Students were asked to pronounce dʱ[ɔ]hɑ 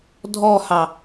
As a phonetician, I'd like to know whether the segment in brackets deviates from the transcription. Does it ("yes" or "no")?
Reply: no